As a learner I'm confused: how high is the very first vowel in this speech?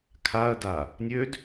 low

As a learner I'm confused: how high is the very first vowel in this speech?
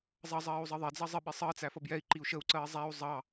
mid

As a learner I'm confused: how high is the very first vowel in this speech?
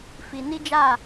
high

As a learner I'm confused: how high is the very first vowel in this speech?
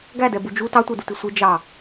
low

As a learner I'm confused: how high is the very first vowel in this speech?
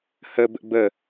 mid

